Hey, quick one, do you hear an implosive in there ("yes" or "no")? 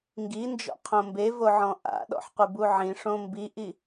yes